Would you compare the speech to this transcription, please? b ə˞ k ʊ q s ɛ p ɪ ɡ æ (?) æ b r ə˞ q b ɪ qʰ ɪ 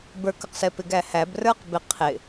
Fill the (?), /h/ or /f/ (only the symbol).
h